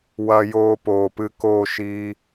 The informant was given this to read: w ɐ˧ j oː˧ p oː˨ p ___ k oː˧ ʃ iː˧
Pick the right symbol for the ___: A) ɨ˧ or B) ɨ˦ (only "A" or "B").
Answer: A